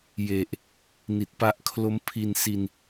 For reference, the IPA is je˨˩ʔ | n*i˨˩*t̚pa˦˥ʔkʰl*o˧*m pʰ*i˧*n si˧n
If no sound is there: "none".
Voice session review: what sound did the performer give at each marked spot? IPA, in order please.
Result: i˨˩, o˦˥, i˧

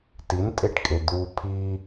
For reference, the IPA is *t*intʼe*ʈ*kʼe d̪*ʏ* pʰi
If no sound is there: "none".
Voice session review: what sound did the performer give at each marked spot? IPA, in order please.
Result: t, ʈ, u

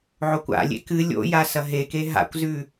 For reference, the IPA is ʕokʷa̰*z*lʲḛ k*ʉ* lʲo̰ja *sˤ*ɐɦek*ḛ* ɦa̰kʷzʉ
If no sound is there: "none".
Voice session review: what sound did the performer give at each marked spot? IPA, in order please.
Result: none, ɨ, s, e

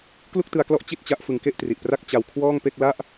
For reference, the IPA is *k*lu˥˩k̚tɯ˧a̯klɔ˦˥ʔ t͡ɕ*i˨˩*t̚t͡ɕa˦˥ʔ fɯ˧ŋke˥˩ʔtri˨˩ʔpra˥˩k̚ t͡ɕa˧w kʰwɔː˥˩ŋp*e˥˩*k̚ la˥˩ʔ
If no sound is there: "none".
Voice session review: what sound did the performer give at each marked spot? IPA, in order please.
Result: k, i˥˩, e˥˩

